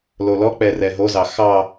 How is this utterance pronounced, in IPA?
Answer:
lolɔk͡pɛ rɛɦozɑ xɑ

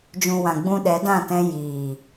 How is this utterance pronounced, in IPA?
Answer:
d͡ʒũ˨wã˨ ɡ͡bũ˧ɗɛ˨˦dã˦˨tɛ̃˧ jiː˨

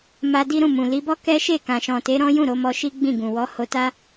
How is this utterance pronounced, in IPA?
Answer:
ma˧di˦ɾũ˦˨mũ˨ li˨˦bɔ˦ kɛ˦ʃe˦˨kã˨ ʃɔ̃˨te˨˦ ɾɔ̃˦jũ˦˨ ɾo˨˦mɔ˧ ʃi˦ɡ͡bĩ˦˨ɡũ˨ wɔ˨˦ho˧ta˦

